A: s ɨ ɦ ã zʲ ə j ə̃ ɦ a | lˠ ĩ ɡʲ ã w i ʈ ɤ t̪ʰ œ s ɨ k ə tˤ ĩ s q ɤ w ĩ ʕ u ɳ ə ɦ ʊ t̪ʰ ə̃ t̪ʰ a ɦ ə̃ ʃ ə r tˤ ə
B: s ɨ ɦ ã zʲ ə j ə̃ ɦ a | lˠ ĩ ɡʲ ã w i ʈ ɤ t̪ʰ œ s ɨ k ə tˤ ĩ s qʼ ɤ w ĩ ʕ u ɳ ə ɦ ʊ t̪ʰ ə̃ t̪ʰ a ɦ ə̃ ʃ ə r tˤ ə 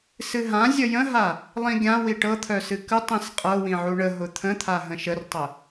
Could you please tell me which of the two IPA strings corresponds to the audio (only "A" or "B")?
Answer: B